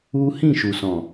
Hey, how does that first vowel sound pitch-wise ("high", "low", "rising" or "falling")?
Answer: high